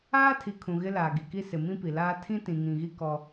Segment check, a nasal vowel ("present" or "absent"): present